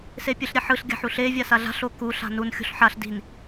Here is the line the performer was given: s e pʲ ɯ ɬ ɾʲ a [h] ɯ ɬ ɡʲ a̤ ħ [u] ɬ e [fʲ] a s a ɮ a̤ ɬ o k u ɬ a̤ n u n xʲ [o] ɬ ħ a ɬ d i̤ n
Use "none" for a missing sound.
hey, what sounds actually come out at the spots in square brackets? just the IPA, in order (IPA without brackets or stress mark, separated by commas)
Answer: ħ, u, vʲ, o̤